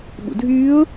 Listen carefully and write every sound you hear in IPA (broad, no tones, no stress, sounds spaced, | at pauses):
ɓ ṵ dʱ yː ʊ̯